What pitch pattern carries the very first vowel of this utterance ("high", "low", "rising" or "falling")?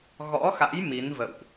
rising